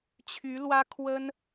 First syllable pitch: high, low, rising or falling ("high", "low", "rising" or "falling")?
rising